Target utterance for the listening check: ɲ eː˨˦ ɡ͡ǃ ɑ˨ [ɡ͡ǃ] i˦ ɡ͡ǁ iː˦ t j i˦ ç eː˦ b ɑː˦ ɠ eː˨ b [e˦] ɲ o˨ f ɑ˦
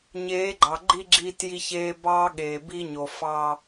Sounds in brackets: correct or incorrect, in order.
correct, incorrect: i˦

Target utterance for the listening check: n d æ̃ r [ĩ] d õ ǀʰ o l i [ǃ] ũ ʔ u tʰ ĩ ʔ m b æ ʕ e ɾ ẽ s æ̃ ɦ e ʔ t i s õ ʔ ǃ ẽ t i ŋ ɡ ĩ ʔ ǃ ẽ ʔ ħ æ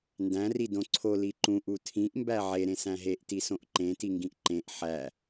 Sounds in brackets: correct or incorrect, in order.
incorrect: i, correct

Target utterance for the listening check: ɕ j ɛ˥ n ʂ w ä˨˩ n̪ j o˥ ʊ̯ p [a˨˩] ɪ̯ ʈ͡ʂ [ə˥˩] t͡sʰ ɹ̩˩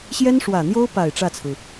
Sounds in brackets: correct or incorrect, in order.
correct, incorrect: ä˥˩

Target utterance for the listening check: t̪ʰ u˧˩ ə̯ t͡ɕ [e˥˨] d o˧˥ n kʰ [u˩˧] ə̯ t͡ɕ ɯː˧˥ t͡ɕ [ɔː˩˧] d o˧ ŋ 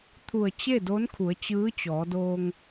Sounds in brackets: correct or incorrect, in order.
correct, correct, correct

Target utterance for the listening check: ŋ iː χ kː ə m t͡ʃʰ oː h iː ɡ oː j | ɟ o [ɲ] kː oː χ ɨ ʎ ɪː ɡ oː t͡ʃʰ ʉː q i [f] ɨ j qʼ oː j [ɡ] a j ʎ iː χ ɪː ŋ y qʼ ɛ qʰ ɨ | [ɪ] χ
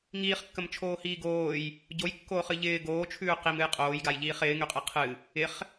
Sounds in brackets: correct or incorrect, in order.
incorrect: j, incorrect: m, correct, correct

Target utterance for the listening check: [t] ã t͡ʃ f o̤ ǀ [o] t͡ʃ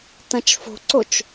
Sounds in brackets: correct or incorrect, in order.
correct, correct

